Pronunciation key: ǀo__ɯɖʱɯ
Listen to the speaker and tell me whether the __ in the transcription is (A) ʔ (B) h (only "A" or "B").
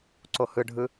B